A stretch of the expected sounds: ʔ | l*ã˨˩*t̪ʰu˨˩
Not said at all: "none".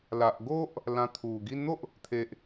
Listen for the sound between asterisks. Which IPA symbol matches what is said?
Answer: ã˧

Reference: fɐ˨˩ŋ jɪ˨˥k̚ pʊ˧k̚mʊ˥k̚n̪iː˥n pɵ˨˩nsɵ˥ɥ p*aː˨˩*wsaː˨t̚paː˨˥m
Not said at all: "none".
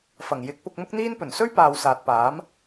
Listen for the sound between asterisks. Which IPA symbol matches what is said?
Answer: aː˨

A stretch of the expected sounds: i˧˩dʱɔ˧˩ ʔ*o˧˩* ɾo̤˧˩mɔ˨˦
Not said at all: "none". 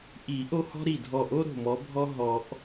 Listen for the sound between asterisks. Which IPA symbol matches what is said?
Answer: o˦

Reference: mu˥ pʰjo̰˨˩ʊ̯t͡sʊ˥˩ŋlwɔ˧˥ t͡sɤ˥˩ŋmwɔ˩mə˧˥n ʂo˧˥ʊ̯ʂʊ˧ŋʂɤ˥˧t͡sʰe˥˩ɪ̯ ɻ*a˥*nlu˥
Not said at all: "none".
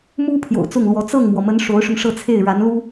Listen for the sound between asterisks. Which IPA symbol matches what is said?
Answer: a˧˥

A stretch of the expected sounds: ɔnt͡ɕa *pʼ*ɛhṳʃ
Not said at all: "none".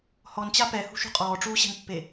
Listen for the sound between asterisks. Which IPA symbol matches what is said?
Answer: p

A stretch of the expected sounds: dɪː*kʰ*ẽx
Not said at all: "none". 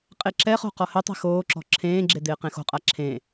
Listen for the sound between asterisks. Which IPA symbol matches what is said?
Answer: q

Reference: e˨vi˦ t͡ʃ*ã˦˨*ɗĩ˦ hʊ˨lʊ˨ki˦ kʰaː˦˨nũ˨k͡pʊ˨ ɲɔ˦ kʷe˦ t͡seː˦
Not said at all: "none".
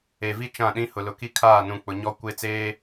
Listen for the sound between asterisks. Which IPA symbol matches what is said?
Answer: ã˦˨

